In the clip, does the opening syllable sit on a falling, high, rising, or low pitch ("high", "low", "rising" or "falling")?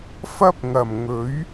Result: high